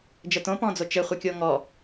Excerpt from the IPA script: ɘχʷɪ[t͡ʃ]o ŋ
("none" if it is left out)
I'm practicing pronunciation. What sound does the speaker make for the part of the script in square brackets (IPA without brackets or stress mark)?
kʲ